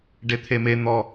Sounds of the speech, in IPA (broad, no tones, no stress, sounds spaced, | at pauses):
ɖ e t̪ʰ e m e n̪ ɔ